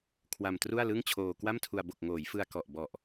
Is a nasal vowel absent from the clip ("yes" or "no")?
yes